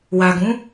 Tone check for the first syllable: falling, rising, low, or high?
low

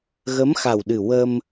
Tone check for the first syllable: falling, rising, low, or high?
rising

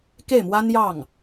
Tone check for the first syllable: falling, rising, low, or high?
falling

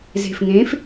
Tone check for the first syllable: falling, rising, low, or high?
low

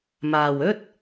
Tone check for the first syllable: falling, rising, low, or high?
low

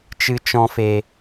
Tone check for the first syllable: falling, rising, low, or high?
high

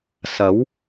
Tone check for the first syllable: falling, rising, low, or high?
rising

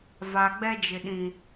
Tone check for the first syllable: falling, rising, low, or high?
low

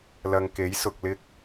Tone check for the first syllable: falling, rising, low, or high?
low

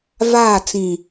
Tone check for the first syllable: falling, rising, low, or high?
falling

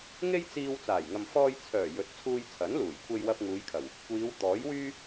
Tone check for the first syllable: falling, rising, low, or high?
high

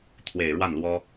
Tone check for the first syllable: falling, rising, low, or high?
low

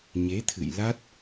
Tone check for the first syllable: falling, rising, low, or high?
rising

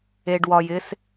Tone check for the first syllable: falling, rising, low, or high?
low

